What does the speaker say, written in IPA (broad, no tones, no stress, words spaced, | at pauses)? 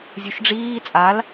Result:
zʲuʃɖ͡ʐiː t͡sʼal